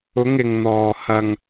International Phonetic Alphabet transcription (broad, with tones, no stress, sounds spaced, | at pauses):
ʊ˨˧ ŋ ɪ˨ ŋ n̪ ɔː˨ h ɐ˧ ŋ